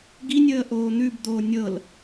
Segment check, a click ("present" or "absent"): absent